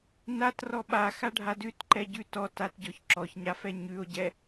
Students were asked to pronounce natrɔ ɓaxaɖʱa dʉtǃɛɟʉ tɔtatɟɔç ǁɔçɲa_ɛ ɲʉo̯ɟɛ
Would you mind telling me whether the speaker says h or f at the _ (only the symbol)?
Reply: f